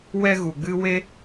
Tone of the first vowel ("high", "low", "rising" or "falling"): high